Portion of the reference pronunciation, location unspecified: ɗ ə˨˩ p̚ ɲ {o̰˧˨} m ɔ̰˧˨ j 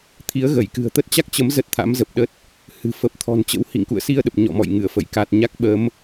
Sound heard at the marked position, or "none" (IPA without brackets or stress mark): ɔ̰˧˨